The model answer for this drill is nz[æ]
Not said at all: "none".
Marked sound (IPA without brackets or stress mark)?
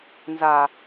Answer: a